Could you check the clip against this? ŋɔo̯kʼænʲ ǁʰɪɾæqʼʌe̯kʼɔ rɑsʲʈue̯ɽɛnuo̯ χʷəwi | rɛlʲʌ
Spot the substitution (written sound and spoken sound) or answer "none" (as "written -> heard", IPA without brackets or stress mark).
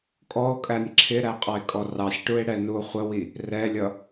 ŋ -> kʼ